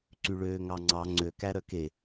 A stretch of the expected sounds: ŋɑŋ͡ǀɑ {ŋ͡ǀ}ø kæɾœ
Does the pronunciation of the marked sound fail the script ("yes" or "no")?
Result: no